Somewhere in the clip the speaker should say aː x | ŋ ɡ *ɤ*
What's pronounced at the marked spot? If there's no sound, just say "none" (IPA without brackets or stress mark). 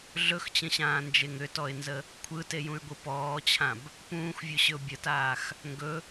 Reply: ɵ